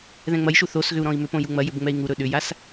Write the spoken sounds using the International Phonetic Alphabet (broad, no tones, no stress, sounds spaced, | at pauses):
ð ɛ̃ ŋ͡m ɐ j ʃ u θ o s ɣ ʏ u̯ ɾ ɔ̃ i̯ m ʏ p õ j u ŋ͡m ɐ j ʏ b ŋ͡m ɛ i̯ ŋ u ɾ ɵ ɗ ʏ j a s